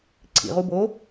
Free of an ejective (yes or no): yes